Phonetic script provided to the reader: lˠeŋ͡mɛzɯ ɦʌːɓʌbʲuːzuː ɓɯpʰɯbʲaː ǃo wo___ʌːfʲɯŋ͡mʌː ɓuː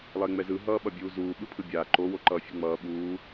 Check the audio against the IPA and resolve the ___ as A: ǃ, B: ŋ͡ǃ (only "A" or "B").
A